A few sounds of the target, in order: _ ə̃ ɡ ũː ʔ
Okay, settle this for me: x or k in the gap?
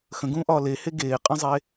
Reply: x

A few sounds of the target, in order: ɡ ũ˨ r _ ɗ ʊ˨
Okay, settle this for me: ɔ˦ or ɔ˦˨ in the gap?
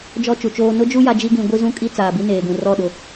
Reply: ɔ˦˨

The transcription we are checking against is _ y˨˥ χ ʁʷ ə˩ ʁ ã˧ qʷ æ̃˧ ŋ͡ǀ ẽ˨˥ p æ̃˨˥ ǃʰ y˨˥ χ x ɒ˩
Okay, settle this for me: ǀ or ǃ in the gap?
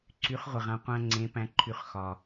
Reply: ǀ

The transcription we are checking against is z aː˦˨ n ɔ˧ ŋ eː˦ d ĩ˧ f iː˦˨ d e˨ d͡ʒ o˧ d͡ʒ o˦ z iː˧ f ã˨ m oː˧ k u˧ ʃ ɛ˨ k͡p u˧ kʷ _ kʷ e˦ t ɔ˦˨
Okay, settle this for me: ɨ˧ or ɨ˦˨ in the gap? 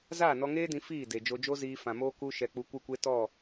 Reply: ɨ˦˨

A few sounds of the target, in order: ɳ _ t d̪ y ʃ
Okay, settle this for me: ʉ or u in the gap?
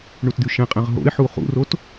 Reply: u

